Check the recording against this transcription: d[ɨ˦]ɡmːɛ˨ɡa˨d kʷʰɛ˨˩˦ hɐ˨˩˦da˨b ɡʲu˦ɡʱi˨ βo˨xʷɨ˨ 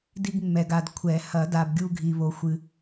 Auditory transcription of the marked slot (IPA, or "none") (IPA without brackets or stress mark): i˦